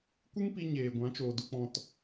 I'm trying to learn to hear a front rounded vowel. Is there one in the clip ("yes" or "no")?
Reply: no